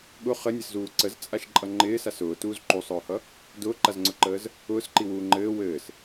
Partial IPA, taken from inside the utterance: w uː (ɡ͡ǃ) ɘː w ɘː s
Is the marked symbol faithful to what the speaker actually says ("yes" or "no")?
no